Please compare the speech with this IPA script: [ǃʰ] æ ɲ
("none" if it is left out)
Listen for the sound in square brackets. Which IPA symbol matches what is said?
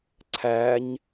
ǀʰ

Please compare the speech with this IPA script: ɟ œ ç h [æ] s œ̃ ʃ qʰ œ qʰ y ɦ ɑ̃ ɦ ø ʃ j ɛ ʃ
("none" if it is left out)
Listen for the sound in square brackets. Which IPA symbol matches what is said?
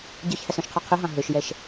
æ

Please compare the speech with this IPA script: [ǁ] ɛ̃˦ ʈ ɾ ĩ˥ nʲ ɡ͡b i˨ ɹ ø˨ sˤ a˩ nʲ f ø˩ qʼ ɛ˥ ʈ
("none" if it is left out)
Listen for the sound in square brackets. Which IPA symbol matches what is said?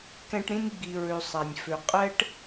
k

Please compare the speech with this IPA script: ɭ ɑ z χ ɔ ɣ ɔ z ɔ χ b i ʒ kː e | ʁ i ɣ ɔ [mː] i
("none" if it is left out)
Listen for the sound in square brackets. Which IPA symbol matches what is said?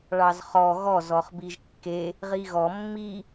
mː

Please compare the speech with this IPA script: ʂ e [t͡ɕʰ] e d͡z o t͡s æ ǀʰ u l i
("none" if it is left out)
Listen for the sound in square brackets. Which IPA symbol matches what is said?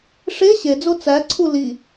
ɕ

